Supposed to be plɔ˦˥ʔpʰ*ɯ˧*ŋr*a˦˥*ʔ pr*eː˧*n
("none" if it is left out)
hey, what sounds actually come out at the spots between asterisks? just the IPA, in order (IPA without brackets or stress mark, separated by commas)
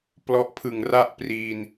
ɯ˨˩, a˥˩, iː˧